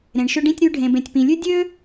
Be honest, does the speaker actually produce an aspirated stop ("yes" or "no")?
no